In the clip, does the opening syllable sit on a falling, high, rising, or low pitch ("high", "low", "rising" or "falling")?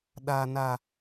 low